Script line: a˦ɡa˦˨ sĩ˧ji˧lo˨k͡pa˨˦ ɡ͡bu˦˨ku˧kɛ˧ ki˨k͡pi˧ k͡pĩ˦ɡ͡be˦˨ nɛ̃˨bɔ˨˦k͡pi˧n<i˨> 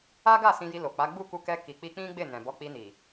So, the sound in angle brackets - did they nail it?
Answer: yes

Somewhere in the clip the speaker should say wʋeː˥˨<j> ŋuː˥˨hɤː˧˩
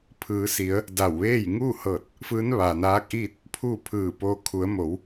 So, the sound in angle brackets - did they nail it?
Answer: yes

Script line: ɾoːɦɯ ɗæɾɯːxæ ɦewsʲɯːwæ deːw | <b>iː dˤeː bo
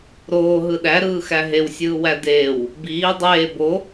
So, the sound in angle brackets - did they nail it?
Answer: yes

